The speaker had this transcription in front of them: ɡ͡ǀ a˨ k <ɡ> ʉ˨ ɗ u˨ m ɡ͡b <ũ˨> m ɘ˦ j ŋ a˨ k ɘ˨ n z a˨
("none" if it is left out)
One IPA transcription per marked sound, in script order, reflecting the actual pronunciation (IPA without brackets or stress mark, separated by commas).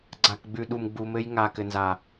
ɡ͡b, u˨